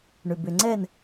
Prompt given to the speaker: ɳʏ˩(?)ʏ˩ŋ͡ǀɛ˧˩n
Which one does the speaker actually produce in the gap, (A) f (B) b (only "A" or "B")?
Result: B